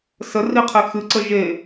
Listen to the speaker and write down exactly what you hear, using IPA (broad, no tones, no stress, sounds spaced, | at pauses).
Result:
s ə r i qʰ e x ɨ ǀ ə ʒ e